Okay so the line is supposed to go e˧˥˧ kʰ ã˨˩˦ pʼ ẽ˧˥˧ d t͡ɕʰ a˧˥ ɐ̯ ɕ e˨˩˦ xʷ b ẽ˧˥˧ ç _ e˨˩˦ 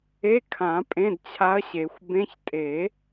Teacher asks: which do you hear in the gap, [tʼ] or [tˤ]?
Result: tʼ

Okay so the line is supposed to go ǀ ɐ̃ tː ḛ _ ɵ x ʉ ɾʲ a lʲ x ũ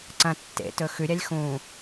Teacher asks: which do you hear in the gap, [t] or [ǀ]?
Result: t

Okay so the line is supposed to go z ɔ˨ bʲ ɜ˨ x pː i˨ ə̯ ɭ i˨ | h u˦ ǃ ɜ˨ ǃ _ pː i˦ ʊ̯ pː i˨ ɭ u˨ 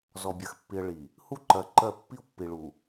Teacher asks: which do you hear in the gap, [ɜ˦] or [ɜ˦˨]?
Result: ɜ˦˨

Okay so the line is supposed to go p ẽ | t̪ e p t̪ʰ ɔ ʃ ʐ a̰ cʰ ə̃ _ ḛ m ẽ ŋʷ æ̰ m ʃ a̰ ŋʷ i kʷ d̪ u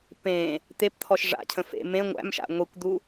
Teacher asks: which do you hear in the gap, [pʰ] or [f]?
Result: f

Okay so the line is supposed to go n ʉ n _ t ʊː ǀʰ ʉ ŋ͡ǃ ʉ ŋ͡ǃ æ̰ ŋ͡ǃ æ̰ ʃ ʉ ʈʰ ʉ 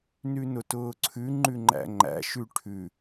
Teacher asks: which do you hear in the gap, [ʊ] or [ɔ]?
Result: ʊ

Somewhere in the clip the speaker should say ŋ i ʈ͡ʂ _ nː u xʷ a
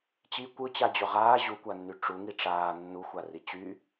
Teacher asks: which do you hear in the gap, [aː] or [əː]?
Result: aː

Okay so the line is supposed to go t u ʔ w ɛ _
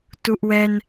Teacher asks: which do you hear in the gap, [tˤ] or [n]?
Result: n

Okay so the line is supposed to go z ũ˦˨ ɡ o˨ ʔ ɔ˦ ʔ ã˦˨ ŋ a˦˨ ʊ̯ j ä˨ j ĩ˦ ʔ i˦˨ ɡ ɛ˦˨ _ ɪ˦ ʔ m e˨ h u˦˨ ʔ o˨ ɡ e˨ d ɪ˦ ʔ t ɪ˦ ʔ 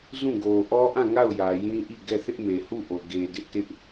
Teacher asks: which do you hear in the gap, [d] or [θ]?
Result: θ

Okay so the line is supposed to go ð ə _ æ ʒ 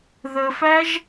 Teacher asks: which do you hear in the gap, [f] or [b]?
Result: f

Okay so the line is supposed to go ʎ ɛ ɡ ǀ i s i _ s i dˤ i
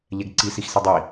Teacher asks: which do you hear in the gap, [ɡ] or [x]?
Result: x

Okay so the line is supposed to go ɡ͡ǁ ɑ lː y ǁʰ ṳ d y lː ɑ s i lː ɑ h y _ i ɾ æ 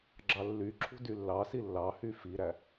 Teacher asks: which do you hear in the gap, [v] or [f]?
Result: f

